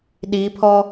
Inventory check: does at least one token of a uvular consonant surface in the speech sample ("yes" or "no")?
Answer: no